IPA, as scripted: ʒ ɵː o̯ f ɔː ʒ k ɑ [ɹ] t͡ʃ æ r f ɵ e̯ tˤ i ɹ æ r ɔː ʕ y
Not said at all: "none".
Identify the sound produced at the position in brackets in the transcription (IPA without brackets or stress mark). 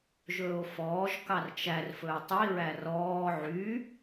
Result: r